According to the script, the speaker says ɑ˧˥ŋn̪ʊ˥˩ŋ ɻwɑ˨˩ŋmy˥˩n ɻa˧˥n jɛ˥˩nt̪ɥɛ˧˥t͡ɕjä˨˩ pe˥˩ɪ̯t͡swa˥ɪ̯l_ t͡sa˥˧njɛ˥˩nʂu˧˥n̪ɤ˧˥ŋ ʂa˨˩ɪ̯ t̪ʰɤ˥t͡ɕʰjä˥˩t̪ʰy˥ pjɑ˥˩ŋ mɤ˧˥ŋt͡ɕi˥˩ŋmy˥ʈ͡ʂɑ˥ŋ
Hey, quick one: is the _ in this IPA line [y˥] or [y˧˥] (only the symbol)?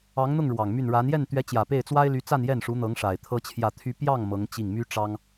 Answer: y˧˥